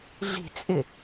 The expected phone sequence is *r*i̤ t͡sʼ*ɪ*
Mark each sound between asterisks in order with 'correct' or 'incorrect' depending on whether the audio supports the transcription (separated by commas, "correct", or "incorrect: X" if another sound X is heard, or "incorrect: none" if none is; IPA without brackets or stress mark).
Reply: incorrect: ɮ, correct